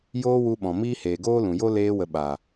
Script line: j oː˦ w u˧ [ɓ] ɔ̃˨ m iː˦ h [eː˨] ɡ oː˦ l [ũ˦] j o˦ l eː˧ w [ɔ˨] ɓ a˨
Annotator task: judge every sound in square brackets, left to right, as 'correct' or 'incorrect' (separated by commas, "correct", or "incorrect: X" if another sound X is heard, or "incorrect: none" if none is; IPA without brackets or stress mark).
correct, correct, incorrect: ũ˨, incorrect: ə˨